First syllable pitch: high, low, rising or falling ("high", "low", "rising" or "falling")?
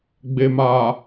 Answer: low